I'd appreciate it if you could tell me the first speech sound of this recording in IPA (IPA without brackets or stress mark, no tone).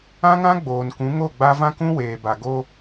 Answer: ã